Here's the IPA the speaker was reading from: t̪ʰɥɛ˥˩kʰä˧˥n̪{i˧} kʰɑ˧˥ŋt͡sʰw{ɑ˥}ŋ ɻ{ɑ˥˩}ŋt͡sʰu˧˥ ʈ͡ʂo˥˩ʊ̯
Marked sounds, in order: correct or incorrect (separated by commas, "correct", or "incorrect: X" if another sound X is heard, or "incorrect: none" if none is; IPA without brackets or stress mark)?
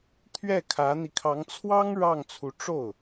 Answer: correct, correct, correct